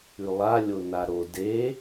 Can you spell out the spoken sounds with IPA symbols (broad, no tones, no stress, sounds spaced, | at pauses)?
ʉ lˠ a lʲ o n a ɾ o d e